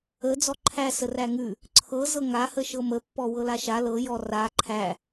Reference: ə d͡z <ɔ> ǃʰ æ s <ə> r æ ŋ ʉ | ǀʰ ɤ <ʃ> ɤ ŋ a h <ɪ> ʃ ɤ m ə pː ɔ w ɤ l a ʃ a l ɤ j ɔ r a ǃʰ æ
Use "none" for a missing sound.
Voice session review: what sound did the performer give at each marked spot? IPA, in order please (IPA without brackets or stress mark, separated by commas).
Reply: ɔ, ə, z, ə